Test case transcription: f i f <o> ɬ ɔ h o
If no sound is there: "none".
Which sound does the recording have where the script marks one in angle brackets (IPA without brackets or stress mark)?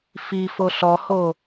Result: o